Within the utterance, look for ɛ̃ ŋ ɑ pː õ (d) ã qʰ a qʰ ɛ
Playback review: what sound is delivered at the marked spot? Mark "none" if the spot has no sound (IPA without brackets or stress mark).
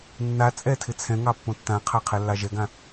tː